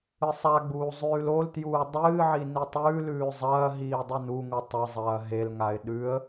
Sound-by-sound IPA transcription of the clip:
ɨsˤaɡ͡buː zˤʉːloltjuː dˤɨːʕi nitˤʉːlʉː zˤɐːɦiː dˤɨnuŋu tˤɐzˤɐː ɦelŋaɪ̯ ɗʉə̯

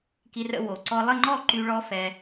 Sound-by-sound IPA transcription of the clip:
ki˧rə̰˧ wo˨˩ǀɔ˧lˠə˥˧ ŋ͡ǃɔ˥˧ǃy˧ ɭɔ˦˥ fɛ˧

